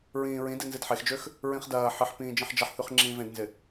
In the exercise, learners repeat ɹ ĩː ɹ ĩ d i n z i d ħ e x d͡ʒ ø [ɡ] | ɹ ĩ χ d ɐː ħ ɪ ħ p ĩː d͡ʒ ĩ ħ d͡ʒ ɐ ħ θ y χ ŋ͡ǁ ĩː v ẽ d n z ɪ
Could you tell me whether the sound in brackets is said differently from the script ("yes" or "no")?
yes